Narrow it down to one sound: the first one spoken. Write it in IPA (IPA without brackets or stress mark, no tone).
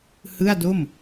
h